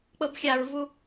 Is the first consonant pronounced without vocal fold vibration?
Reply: yes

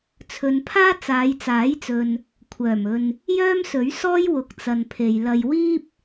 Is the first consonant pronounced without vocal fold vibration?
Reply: yes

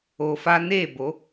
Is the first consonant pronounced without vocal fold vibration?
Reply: yes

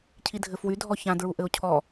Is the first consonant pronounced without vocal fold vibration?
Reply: yes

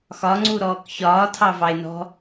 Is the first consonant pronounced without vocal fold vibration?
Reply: yes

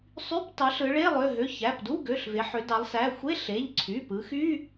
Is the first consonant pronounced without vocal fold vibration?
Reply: yes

